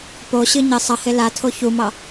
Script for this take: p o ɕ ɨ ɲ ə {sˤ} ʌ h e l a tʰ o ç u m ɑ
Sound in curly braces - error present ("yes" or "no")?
no